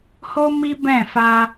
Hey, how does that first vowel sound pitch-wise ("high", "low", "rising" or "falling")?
high